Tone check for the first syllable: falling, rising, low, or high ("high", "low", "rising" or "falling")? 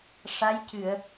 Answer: rising